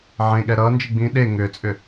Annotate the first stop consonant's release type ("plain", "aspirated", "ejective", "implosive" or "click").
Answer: implosive